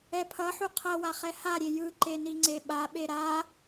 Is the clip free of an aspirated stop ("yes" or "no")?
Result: no